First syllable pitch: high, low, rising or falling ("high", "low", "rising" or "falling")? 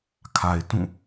low